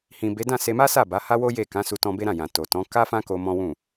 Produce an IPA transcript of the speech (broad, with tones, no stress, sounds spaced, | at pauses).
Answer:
h ĩ˨ b e˨˦ d ã˦˨ s e˧ m a˦ s a˦˨ b a˨˦ h a˦ w o˦ j e˦˨ k ã˨˦ s u˧ t ɔ̃˧ b e˦ ɾ ã˦˨ j ã˨ t o˨ t ɔ̃˨˦ k a˦ f ã˦ k o˧ m ɔ̃˦ w ũ˦˨